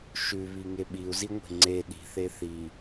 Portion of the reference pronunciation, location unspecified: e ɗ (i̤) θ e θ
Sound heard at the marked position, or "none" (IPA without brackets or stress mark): i̤